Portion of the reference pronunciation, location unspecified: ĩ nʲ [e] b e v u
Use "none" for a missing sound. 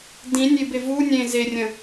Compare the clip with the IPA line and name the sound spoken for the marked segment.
e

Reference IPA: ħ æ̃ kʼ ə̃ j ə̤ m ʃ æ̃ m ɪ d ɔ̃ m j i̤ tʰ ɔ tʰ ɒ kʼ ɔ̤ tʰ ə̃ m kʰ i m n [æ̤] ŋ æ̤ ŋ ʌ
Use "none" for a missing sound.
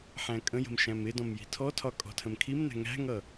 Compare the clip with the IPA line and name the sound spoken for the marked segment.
æ̤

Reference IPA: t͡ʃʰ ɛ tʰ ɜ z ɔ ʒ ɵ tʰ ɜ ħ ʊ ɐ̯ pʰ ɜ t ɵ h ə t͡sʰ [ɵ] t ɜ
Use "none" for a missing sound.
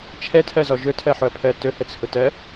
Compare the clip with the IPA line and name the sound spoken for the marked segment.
ʊ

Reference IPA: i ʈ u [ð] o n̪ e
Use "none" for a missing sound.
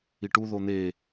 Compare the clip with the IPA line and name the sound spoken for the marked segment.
ð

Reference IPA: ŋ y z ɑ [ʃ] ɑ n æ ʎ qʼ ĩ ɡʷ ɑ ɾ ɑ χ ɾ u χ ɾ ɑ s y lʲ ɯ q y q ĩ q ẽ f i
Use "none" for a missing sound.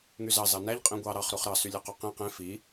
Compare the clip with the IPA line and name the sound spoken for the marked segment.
z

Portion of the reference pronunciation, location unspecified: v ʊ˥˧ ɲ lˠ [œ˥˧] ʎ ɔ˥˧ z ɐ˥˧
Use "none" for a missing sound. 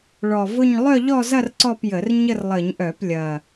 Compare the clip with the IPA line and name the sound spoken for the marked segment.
œ˥˧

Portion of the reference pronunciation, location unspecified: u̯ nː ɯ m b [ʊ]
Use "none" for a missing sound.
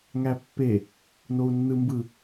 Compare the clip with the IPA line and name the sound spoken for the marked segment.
ɯ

